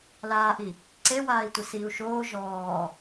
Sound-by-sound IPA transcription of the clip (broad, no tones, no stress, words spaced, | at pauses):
laːʔi | ǀewaːi̯tʷɪ siːu̯ʃoː ʒɔː